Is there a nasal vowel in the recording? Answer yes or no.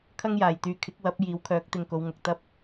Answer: no